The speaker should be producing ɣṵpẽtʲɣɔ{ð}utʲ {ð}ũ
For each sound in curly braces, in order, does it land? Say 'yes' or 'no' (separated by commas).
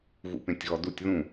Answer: no, yes